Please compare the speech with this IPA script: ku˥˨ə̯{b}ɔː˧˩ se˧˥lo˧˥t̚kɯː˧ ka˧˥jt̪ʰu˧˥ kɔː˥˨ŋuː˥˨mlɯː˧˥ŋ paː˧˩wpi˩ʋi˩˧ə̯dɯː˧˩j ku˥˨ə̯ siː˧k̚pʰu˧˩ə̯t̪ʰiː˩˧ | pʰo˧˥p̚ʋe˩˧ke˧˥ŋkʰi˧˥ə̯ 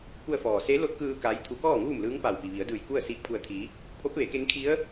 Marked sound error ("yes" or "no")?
yes